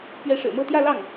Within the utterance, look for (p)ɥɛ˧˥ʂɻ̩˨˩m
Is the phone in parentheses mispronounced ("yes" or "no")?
no